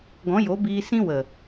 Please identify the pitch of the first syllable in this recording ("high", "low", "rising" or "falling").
rising